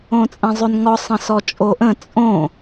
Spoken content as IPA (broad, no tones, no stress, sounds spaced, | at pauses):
õ t͡sʼ ɛ̃ zˤ ʉ n ŋ ɔ sˤ ə̃ s ɔ t͡ʃʼ o ʔ ə̃ t͡sʼ õ